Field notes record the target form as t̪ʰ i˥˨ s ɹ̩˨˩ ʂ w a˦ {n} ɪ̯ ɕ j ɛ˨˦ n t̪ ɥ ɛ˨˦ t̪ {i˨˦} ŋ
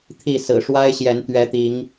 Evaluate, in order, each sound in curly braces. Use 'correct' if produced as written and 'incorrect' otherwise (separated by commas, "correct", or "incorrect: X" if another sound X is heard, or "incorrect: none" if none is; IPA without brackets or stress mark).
incorrect: none, correct